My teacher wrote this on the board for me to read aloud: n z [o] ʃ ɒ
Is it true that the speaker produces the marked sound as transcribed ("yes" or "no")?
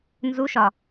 no